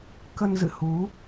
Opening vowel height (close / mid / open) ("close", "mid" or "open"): mid